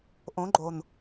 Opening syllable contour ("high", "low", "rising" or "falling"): rising